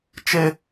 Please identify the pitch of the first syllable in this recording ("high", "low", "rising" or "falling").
high